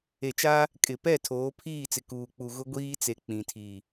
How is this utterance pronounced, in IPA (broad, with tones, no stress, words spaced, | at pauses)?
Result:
e˨t͡ʃa˦ | kʼɪ˨pɛ˦˨ tʰoː˨˦pʰiː˦˨t͡sɪ˨ kuː˨k͡pu˨ ɣʊ˦ɡʷiː˦t͡se˨ k͡pĩ˨tʰi˨